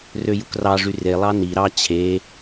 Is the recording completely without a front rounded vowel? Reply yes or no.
no